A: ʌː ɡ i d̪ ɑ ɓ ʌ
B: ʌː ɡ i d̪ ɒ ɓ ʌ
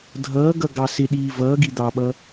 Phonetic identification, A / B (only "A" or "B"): A